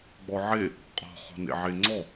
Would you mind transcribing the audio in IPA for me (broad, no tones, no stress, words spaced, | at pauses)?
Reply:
ɡ͡bɔʕe | qʼɔ̤χɔ̤nḛ ʕeŋ͡ǀɔ